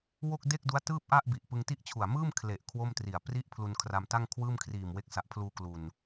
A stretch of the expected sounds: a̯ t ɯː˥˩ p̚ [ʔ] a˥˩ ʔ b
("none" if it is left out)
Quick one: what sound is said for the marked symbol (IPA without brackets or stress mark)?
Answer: ʔ